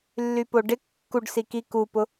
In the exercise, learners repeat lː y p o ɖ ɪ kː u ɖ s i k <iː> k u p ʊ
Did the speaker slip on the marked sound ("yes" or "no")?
yes